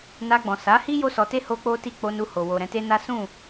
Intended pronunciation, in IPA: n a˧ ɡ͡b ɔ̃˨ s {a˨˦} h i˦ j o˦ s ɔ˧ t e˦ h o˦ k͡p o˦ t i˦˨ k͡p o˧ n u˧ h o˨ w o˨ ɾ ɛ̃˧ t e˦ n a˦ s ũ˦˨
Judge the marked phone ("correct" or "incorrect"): correct